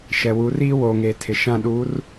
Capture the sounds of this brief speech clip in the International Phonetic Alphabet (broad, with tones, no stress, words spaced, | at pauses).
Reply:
ʃɛ˨wu˨˦riː˦ woː˨ŋe˨ tʰɪ˨ʃã˦˨ɗuː˨˦r